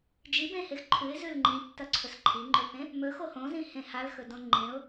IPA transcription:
d͡ʒibẽhex ǃʰʉɪ̯zʉl ŋ͡ǃĩtːɐǀʰɵs ǃʰiŋ͡ǃɵθẽ | mɵxo hõzĩhẽ halxɵdõ ŋ͡ǃẽʊ̯

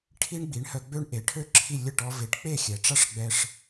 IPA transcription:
ʈʰi˥ɳɡ͡bi˩˥ɳhœ˧ ɡ͡bø˥ɳʔe˩˥ʈʰø˥ǁʰi˥˩ lʲə˥˩ʈɔ˧ve˩˥ʈ k͡pe˥˩xʲɛ˩ʈ͡ʂa˥ʂɡ͡bɛ˧ʂ

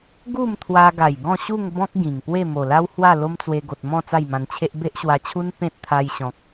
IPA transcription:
ɡu˥˧mt̪ʰwa˧ɡa˨˩j ɡɔ̃˥˧ɕu˥˧ŋbɔ̃˦k̚ ɡĩ˨˩ŋpwe˥˧ mo˨˩la˦whwa˥˧ lo˦mt͡swe˧ɡo˨t̚mɔ̃˥˧ t͡sa˥˧jmã˧nt͡ɕʰe˦ʔ be˦ʔɕwa˧t͡ɕʰu˦n pẽ˦t̚t̪ʰa˧jɕɔ̃˨k̚

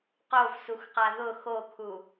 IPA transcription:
qovsuxqa ðʊ xokʰu

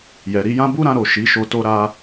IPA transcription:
jɛ˨ɾi˧jã˦ bu˦ɾã˧ɾo˨ ʃi˨˦ʃo˧ to˧ɾa˧

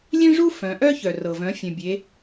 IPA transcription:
lʲẽ˥ʐu˥ fœ̃˩˧ʔœ˥çœ˩rɤ˩ vœ̃˩˧fʲœ̃˩bʲe˩˧

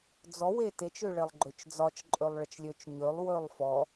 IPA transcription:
d͡zɔwe tet͡ʃøɭelˠ ɡ͡ǃøt͡ʃd͡zɒt͡ʃ ǃʼølˠɭət͡ʃlʲøt͡ʃ ɲølˠ wølˠfɔ

